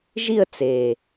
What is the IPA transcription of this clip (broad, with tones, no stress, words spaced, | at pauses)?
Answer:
ʒi˥˧ə̯t͡se˨˩